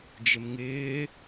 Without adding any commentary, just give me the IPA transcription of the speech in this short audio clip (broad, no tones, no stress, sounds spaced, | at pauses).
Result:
d͡ʒ ɪ m ŋ ɪː